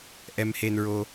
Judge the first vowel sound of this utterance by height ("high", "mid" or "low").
mid